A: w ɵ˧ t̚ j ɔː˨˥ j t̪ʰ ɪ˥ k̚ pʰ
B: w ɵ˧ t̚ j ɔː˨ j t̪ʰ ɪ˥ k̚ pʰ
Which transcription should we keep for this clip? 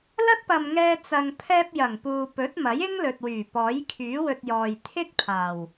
B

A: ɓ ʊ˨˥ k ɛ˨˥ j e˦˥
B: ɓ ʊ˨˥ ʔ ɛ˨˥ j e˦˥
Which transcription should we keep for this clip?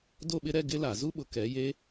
A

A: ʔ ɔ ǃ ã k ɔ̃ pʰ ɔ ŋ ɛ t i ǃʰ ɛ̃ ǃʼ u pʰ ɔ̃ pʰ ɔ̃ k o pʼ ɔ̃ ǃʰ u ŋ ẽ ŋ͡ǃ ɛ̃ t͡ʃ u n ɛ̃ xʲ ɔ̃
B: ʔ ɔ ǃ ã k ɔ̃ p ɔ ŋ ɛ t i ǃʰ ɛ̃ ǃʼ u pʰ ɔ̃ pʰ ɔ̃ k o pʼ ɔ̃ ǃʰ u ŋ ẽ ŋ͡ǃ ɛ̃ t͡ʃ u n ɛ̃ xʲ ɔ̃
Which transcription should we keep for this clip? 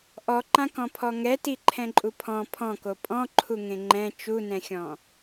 A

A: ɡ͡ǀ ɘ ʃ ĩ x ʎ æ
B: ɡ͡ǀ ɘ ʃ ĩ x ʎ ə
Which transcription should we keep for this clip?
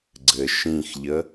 B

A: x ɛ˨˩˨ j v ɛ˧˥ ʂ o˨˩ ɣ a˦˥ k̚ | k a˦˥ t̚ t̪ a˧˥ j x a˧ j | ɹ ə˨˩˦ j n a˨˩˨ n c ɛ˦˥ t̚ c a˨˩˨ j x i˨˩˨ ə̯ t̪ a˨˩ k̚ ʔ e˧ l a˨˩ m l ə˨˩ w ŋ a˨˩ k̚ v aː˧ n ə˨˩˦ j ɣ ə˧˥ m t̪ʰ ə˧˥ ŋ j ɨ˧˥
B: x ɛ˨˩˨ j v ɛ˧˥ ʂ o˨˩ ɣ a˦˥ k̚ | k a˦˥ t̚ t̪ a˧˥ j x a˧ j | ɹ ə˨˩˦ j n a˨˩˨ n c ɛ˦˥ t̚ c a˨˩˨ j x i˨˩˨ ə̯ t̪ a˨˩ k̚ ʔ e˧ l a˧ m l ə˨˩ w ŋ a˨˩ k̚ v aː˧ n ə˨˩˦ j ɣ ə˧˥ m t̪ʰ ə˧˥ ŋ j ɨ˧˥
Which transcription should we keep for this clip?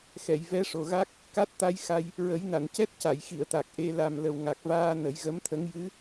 A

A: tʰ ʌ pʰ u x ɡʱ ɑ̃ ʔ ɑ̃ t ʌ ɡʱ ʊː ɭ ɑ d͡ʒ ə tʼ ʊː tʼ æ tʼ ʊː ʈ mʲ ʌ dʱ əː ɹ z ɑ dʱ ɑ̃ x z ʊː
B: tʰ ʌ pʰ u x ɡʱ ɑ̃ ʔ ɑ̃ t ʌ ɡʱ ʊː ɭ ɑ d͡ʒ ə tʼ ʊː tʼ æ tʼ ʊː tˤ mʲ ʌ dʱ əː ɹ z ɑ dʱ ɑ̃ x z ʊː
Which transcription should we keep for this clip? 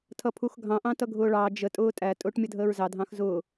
A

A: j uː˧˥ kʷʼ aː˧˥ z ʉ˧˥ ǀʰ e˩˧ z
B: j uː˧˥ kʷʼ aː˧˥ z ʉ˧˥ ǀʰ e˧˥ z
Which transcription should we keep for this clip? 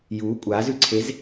B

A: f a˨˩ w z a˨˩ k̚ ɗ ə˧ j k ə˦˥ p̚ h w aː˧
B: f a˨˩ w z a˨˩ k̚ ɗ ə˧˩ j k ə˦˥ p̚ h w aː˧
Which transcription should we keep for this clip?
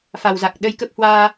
A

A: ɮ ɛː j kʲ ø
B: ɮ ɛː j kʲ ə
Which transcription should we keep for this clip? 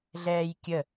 B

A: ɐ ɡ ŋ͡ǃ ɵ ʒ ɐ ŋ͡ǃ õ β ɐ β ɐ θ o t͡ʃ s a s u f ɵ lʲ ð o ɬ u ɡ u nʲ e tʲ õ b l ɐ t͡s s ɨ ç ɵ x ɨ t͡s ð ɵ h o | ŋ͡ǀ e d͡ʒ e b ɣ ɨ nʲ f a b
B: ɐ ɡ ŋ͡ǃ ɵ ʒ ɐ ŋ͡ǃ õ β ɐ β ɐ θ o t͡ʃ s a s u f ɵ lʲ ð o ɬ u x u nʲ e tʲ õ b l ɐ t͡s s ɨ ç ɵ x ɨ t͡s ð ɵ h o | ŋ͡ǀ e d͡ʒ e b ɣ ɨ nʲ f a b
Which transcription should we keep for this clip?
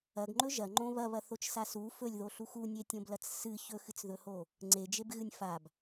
B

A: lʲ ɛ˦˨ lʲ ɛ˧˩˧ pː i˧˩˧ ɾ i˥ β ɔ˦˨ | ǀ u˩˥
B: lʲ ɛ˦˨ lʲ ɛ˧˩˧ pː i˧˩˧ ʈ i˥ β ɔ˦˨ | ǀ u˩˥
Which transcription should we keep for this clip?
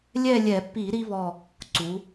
A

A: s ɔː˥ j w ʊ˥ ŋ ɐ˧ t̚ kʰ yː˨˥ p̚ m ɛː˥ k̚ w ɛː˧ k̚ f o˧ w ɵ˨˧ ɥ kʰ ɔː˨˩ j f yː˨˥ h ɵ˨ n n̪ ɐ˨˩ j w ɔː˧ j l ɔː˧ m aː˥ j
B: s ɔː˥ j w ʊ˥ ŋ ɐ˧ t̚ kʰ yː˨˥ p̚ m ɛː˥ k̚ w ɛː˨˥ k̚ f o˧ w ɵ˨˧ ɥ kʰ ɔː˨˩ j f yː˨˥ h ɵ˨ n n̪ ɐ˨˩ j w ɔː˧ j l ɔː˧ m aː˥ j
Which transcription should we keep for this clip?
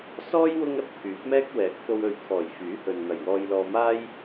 B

